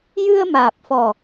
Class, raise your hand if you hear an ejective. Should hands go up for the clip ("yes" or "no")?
no